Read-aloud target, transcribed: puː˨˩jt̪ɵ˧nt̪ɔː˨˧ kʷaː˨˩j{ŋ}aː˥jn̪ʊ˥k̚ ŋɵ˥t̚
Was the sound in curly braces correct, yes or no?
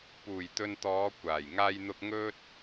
yes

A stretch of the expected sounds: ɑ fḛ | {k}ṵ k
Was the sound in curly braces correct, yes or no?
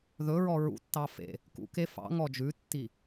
yes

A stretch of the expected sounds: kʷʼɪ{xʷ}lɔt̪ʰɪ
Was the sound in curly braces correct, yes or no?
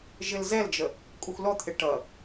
yes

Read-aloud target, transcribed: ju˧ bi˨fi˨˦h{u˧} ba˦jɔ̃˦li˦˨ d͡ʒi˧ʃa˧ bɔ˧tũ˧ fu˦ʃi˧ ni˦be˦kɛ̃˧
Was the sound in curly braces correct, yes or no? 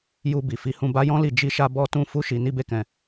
no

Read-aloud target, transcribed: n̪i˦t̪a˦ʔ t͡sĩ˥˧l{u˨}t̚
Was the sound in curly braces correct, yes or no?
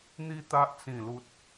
no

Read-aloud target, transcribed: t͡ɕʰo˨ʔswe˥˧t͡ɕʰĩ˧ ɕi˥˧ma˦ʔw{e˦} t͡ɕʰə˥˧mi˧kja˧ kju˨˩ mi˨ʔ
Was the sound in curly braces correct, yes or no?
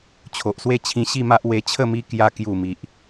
no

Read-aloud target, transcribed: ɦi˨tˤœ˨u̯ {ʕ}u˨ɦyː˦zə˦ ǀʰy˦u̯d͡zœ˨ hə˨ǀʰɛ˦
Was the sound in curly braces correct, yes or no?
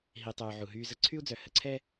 yes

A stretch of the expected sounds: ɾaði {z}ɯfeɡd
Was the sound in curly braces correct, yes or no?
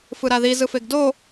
yes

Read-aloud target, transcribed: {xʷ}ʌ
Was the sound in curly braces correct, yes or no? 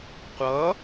no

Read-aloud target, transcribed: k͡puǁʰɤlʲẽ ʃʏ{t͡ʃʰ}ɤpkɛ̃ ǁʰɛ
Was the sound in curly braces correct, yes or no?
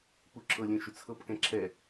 no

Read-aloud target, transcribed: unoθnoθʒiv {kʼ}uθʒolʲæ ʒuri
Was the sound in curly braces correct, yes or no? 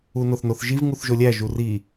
no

